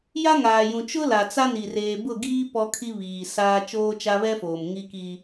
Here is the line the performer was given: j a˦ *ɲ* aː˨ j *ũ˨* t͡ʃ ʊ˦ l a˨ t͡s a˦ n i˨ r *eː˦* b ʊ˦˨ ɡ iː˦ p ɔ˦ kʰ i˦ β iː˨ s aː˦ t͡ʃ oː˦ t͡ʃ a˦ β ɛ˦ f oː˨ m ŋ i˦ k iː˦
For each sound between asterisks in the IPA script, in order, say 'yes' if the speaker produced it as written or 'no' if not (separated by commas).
no, yes, no